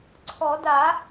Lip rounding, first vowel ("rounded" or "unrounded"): rounded